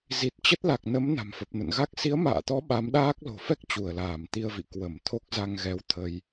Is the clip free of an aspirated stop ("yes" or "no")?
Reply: no